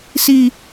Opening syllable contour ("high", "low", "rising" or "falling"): high